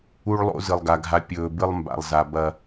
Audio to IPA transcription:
u˦ ɭ lˠ o̰˦ z ɨ˨ lˠ ɡ a˨ ɡʱ a˧ pʲ ɵː˨ b ɨ˧ lˠ m b a̰˨ lˠ z a˨ b ɐ˧

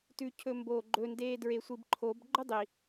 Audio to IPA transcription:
t ʉ cʰ ɵ m b oː ɡ͡ǃ ɵ n d eː d ɹ e sʷ i b ǃʰ o b ɡ͡ǃ ɵ dˤ i

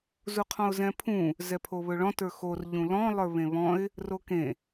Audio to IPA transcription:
z u qʰ ɔ̃ ʊ̯ z ɛ̃ pʰ ũ | z ɛ pʰ o β ɵ ɭ ɔ̃ t ə˞ x o r ʎ ũ l ɔ̃ lˠ ə˞ β ẽ β ɔ̃ ɪ̯ | r o k ẽ

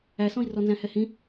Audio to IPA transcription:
æ s ɔ̃ i̯ r ɔ n z æ̃ h ɛ h ĩ

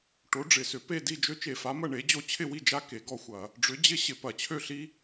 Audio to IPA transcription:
ʈ o˨˥ ɖ͡ʐ ɪ˧˩˧ s ʏ˧˩˧ p e˥˨ d i˥˨ d͡ʒ ø˦˥ t͡ʃ e˧˩˧ f a˨˥ m ɐ˥˨ ɳ e˨˥ d͡ʑ o˥˨ t͡ɕʰ ɪ˥˨ w i˥˨ d͡ʒ a˥˨ k e˧˩˧ ɡ ɔ˥˨ xʷ ɐ˧˩˧ | ɖ͡ʐ ʏ˨˥ d͡ʑ ɪ˦˥ ɕ ɪ˧˩˧ p ɐ˧˩˧ t͡ɕʰ ø˥˨ ɬ i˦˥

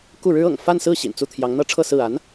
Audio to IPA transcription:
k u˥˩ ɻ ɻ̩˥ ɤ̰˨˩ ŋ f a˥˧ n s ɹ̩˥˩ ɕ ḭ˨˩ n t͡s u˥˩ t̪ʰ j ɑ˧˥ ŋ n̪ ɤ˥ ʈ͡ʂʰ ɤ˥˧ s ɹ̩˥˩ a˧˥ n

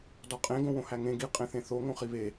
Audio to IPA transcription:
d ɒ qʼ ẽ ɡ õ w õ h æ ŋ ẽ ɡ i qʼ ẽ θ ẽ θ o ŋ õ χ i β e

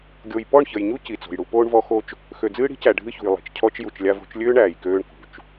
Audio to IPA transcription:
ɡʲ o˨ j p ɔ˦˨ ɳ ç ə˨ j ɲ u˦ c i˨ t͡s o̤˨ j ɽ u˦ p oː˦ ɳ v ɔ˦ x o˦ t͡ʃ | x ø˨ d͡z ɨː˦ ɽ i̤˦ c æ˨ ɖʱ ɨ˦ ç ṳ˨ j lˠ i̤˨ t͡ʃ cʰ ɔ˦ t͡ʃ j u˨ t͡ʃ lʲ a˦ v o̤˦ t͡ʃ lʲ øː˦ ɳ æː˨ j k øː˦ ɳ k ṳ˨ t͡ʃ

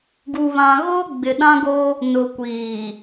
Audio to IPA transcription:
ɡ u˨ β ã˨ ɣ oː˦ ɡ͡b ɪ˨ ɗ ã˦ ɡ o˦ | n ʊ˨ kʷ iː˨

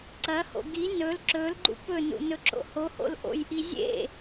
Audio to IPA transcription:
ǀ ɐ h o̰ ɡ i n ɵ l ǁ ɵ l ɡ͡ǃ ṵ p ɵ n ṵ n ɵ ǁ o̰ h o h o̰ l ʔ o̰ j ʔ i zʲ ḛ

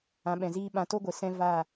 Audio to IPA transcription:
ã˨˦ ɓ ɛ̃˨ z iː˦ ɓ ã˧ t o˦ ɡʷ e˨ s ɛ̃˦ v a˦˨

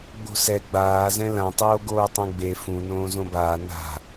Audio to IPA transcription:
ɡ͡b o̤ s ɛ ɡ͡b aː z ɛ̃ l ã tˤ oː ɡ oː tˤ ɛ̃ ɡ͡b e f ũ n õː z õ b aː n a̤

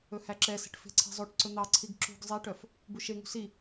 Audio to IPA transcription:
ɵ h æ ǁ ɛ s e̤ ʈ f e̤ ǀʰ e̤ zˤ o ʈ ǀ ɵ n̪ ɑ ǀʰ i ɡ ǁ ṳ ɡ zˤ e ʈ œ f | b u ʃ e ŋ ṳ s i

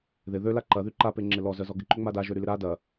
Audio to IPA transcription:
ð ɪ ð ø l a ǃ ɐ ð y ǃ a p e ŋ͡ǁ ɪ l ɔ z œ z ɔ ɡ ɪ ǃ ø ŋ͡m a d a ʒ ø ɾ y l ɪ ɾ a d ɐ

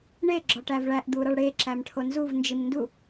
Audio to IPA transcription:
ɳ e ɡ͡ǁ ɒ ʈ æ v ɭ æ ʔ d̪ u ɾ ɒ ɭ ɽ e ǁ æ m ʈʰ o n z u v n d͡ʒ i m n d u

